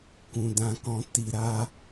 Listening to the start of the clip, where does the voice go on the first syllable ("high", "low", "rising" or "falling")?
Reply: low